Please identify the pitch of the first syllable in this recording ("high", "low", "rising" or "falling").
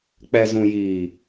low